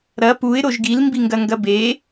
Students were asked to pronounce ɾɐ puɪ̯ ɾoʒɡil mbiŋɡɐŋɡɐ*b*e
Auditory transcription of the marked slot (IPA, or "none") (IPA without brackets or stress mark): b